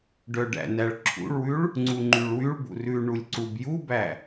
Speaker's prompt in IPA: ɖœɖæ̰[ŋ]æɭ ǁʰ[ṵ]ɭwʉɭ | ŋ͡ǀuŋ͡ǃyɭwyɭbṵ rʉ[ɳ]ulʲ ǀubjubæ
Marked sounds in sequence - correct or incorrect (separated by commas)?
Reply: incorrect, correct, correct